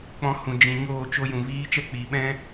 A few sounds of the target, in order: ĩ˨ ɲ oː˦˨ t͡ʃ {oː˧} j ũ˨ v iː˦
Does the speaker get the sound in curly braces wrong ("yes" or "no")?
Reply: yes